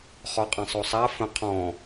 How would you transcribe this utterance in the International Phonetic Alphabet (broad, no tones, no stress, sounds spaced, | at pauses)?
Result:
χ ɔ qʼ ã sˤ o sˤ a f ə̃ qʰ ɔ̃